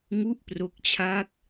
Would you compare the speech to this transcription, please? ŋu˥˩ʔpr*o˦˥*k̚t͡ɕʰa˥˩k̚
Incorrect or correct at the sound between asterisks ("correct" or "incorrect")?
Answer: correct